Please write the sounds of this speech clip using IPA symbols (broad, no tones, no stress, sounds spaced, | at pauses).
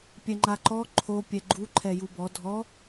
pʲ ɛ ŋ͡ǃ a ǃ ɔ ǃʰ o pʲ ɛ ɡ͡ǃ u ǃʰ ɛ j u b ɔ dʱ ɔ